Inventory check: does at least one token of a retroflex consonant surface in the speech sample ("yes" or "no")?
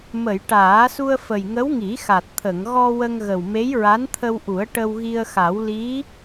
yes